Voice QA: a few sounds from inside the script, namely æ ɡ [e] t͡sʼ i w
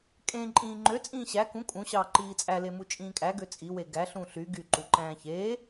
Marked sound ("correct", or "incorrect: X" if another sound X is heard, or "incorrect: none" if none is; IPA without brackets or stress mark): incorrect: ø